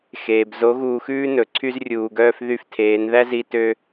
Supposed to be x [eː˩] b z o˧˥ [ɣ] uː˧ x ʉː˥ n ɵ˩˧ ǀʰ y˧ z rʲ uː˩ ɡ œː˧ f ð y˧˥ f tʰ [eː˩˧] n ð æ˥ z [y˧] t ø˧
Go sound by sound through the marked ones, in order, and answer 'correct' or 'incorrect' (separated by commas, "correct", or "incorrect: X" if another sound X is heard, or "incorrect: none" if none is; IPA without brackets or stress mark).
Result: correct, correct, correct, incorrect: i˧